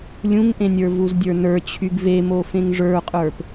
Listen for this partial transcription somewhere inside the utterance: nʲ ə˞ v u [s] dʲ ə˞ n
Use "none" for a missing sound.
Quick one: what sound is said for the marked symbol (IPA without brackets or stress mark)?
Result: z